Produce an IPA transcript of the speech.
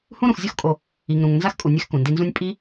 hũ˥ɾũ˨xzʲo˥xkʼo˨ | i˨ŋɾũ˨ŋ nza˥xkʼu˨nʲɛ˦x kũ˩ndi˦nzũ˥nʲ pʼi˥

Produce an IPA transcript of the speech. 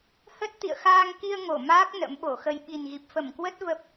hə˦˥t̚ t̪ḭ˧˨ə̯xaː˧ŋki˧ə̯ ŋo˧˩maː˦˥k̚ nə̰˧˥mɓo˧˩xə˧j ɓi˨˩nɣi˨˩p̚fə˧˩mkwə˦˥t̚ və˦˥p̚

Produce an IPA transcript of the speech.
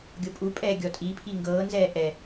ɡʲopʼupʼɛː ɡʲɔtʼi pʰiŋɡɤːnzɛː ʔɛ

